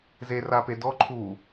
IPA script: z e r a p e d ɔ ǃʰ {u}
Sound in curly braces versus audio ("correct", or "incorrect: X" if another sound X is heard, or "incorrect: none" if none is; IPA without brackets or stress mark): correct